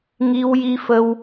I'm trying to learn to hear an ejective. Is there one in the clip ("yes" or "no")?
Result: no